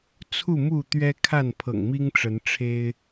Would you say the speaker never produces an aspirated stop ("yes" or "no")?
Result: no